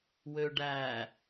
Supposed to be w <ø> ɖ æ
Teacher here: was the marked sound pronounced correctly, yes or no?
yes